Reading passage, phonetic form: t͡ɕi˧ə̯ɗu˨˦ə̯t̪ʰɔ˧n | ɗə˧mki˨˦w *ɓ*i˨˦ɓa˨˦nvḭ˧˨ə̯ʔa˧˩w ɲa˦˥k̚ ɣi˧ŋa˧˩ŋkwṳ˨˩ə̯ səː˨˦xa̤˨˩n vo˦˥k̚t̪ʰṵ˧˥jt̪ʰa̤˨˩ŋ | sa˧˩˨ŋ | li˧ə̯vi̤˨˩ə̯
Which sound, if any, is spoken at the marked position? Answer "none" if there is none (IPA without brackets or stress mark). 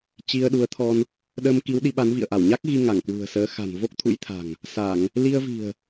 ɗ